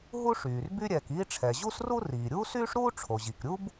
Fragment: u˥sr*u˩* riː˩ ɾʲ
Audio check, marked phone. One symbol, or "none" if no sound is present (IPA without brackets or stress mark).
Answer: u˥